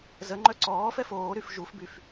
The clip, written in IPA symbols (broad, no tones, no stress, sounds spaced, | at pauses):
z ə ŋ͡ǃ œ ǀ ɔː f ɛ f oː ɾ y f ʒ u f b y f